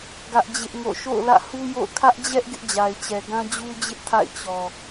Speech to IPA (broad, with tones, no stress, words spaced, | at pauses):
ɡä˦ʔd͡ʑɪ˦ʔŋo̰˦˨ ʃo̰˦˨ʊ̯lä̰˦˨hu˦jo̰˦˨ʊ̯ kʰä˦ʔd͡ʑɛ˦ʔ ɡɪ˦ʔd͡ʑa˨ɪ̯t͡ɕɛ˨ɡã˦ d͡ʑu˦ d͡ʑɪ˦ʔtʰa̰˦˨ɪ̯ t͡ɕɔ˨